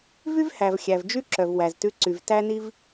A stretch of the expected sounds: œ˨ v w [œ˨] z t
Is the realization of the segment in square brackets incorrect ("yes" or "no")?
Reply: yes